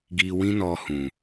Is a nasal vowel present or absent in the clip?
present